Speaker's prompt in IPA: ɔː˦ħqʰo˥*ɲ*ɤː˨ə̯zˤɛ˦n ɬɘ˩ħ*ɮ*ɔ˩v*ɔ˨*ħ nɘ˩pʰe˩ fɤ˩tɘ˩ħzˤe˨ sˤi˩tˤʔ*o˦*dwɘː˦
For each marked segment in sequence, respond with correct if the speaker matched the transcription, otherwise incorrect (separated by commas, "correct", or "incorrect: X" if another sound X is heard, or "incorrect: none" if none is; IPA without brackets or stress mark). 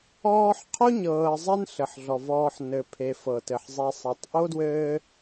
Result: correct, correct, incorrect: ɔː˨, incorrect: o˥